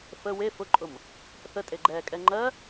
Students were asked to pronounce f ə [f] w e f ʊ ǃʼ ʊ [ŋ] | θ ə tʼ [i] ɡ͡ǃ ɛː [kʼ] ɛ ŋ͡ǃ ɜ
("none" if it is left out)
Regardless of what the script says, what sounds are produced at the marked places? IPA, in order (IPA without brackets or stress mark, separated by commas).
none, m, e, kʼ